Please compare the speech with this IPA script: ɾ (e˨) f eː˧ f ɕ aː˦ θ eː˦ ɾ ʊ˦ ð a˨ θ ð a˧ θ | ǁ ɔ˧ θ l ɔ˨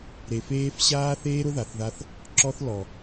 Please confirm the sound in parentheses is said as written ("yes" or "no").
yes